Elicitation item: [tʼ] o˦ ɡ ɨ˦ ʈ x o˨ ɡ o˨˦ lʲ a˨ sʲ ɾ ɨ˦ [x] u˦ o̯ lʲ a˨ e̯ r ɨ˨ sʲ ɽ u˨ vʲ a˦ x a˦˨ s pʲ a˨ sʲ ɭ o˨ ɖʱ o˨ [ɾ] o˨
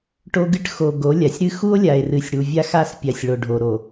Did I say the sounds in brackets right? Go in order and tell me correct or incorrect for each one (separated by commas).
incorrect, correct, correct